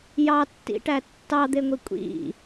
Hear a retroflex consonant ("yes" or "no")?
yes